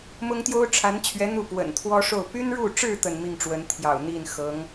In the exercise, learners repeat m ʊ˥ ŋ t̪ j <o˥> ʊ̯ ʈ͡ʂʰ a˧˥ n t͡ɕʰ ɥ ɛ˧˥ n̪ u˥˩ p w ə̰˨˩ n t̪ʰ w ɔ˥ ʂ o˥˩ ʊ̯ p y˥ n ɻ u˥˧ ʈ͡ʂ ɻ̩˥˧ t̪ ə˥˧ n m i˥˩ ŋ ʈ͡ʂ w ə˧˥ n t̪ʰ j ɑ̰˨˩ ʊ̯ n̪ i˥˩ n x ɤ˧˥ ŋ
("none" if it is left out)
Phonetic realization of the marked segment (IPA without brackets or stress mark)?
o˥